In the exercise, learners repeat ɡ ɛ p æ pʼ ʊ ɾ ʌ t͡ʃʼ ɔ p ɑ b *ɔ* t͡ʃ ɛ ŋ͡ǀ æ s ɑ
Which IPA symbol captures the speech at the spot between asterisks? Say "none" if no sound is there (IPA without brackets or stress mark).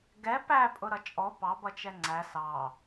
ʌ